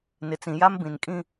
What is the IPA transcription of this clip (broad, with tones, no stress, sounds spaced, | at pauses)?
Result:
n ɪ˨ t͡s ĩ˨ j a˦ m b ĩ˨ n kʼ ĩ˦